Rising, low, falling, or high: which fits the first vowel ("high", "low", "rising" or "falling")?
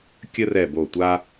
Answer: high